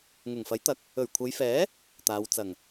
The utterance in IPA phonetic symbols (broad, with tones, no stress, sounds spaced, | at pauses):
ŋ ʊ˨˩ ŋ f ɐ˨˥ j t̪ ɐ˨˥ k̚ | ɵ˨˩ ɥ kʷʰ ɐ˨˧ j f ɛː˨˥ | t̪ aː˨˧ w t͡s ɐ˨˩ ŋ